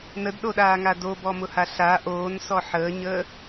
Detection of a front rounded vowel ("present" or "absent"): absent